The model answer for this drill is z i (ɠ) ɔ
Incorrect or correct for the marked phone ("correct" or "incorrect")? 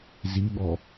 correct